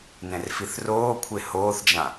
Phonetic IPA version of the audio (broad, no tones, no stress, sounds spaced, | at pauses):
n ɛ̃ r f i θ r oː kʷʰ e h oː θ d͡ʒ ã